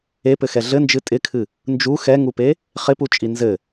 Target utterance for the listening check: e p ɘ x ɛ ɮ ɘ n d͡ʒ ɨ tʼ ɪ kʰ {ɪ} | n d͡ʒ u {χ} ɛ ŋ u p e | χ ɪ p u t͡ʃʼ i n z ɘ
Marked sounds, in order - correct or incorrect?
incorrect, incorrect

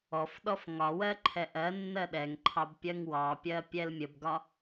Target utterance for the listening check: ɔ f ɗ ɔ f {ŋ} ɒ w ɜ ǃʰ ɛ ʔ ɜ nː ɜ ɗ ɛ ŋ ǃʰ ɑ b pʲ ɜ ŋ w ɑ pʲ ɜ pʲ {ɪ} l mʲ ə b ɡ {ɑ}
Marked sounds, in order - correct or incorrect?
correct, incorrect, incorrect

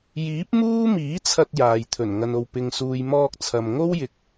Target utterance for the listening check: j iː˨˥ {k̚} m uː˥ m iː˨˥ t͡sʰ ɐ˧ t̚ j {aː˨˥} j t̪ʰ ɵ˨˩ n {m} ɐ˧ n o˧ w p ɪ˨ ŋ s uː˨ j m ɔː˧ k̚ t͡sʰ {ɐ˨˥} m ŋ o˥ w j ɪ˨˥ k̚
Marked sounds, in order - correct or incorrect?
incorrect, incorrect, incorrect, incorrect

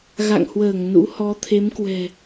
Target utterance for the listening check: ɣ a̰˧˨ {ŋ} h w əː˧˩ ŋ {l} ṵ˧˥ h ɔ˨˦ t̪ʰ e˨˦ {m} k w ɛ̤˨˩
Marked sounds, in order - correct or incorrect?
correct, incorrect, correct

